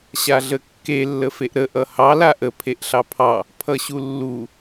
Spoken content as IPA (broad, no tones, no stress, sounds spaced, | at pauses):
ɕ a ɮ ə kː e lː ə f e ʔ ɾ ə ʔ ʌ h ɑ l a ʔ ə pʰ e ʔ ɬ ɑ pʰ ɑ | pʰ ʌ ɕ u lː u